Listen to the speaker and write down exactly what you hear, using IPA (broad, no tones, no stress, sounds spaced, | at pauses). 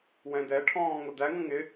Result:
w ɛ̃ d ɛ ʈʰ ɔ̃ː ŋ ʊ d̪ æ ŋ ə̃ ŋ ɪ